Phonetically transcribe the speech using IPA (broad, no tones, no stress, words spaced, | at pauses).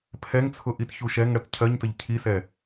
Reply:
pʰɛŋt͡sʰʊ ʔitçuʃɛŋɽət cʰɜɲtəʎ cʰisɛ